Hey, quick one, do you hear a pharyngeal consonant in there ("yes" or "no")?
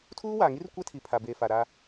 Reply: no